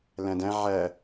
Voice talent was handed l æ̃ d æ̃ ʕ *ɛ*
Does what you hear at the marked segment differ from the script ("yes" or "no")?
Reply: yes